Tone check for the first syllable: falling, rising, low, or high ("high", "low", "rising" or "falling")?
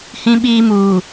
high